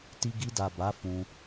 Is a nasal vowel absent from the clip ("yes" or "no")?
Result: no